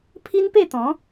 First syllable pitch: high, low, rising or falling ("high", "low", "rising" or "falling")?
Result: high